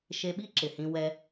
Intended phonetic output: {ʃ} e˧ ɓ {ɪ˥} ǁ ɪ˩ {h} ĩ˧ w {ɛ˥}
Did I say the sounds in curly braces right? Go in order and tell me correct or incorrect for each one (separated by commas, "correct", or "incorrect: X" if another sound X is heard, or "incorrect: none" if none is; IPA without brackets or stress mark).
correct, incorrect: i˥, correct, incorrect: ɛ˧